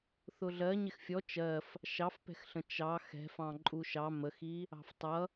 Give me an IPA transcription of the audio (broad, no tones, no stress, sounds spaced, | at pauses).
θ ʊ ɮ ɜ ɲ ɪ x fʲ ɔ t͡ʃ ɜ f | ʃ ɑ f p ɛ̤ x ɬ ə̃ t͡ʃ ɑ x ɛ̤ f ɑ̃ ǃʼ u ʃ ɑ m ə x i | ɑ̤ f tˤ ʌ